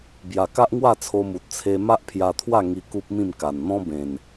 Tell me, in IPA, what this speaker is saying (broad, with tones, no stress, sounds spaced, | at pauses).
b j a˨˩ k a˦ ʔ ŋ w a˥˧ t͡sʰ o˧ m u˨ t̚ t͡sʰ e˧ m a˦ ʔ pʰ j a˧ t̪ʰ w a˥˧ ŋ i˧ k u˦ p̚ m ĩ˥˧ m k a˨˩ n n̪ ɔ̃˦ b ẽ˨˩ n